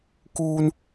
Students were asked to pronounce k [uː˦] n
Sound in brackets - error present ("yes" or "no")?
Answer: no